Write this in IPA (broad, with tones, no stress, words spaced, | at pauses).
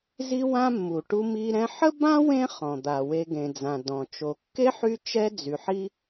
zi˦wã˦mːu˩ ʈu˦mi˦ɾɛ̃˥ ħə˥bã˥wẽ˦χɔ̃˩ d̪a˩we˨ɡẽ˩d͡zã˩ dɔ̃˩t͡ʃo˨ kːe˥ħy˦t͡ʃɛ˦ d͡zy˨ħi˥